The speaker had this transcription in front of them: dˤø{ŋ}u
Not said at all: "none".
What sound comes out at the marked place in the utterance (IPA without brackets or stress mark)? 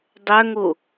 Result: ŋ